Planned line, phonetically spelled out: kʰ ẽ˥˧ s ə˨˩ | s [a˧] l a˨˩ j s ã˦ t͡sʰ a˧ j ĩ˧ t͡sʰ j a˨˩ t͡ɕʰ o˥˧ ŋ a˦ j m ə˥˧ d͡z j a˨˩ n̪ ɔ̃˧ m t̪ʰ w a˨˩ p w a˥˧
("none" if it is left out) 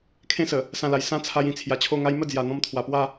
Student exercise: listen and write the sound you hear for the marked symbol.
ã˧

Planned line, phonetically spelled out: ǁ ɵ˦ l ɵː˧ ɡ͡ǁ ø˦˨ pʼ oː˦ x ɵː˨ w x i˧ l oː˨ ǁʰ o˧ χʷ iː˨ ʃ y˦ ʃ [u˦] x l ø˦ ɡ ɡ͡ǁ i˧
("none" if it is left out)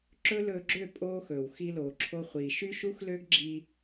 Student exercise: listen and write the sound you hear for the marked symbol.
u˦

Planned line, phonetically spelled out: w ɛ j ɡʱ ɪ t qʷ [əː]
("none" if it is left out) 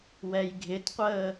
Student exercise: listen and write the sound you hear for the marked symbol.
əː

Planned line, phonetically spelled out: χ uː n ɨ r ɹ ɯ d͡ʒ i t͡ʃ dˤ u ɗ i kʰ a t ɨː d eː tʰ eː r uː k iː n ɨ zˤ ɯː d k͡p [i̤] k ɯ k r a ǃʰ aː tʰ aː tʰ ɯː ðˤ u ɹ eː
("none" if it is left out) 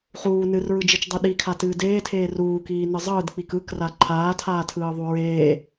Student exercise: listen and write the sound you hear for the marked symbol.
i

